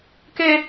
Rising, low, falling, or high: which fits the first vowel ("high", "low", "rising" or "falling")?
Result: high